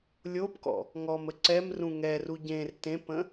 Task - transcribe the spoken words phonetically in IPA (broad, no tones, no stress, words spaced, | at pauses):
lʲopkɔ̰ | ŋɔmə ǀɛmrũ ŋɛru ɟẽr tẽpə̃